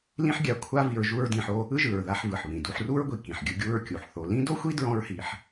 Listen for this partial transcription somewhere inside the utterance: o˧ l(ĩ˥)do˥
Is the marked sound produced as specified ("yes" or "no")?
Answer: yes